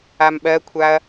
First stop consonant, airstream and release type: implosive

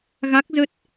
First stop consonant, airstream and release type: plain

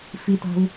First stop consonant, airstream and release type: plain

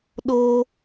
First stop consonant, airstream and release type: implosive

